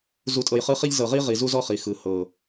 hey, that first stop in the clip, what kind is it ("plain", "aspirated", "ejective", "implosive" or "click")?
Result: ejective